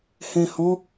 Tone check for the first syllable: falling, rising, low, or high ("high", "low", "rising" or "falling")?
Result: low